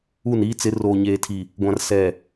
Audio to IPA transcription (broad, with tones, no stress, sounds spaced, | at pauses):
u˦˨ n iː˦ t͡s ɪ˨˦ r oː˨ ɲ eː˨ tʰ i˨ | ɡʷ ã˨ r s ɛ˨